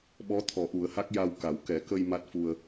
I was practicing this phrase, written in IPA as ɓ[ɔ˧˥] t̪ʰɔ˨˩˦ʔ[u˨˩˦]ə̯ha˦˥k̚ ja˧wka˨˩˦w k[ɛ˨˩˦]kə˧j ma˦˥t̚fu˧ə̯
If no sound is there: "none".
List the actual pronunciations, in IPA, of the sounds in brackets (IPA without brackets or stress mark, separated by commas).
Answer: ɔ˧˥, u˨˩˦, ɛ˨˩˦